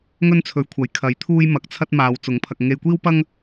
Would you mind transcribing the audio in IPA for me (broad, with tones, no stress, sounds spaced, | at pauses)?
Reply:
ŋ ɵ˥ n t͡sʰ ɵ˨˥ ɥ kʷʰ ɐ˨ j kʰ ɐ˨˥ j t̪ʰ uː˥ j m ɐ˨˥ k̚ t͡sʰ ɐ˥ t̚ m aː˨˧ w t͡s ʊ˨˥ ŋ pʰ ɐ˧ k̚ ŋ e˧ j kʷ iː˥ w p ɐ˥ ŋ